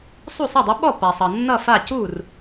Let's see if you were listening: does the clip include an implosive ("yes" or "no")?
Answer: yes